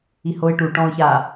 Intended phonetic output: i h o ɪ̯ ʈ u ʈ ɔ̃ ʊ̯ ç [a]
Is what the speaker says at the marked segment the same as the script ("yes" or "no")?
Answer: yes